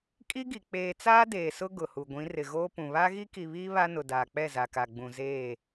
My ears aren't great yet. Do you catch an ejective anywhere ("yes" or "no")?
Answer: yes